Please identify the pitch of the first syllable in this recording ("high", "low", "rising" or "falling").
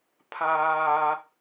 high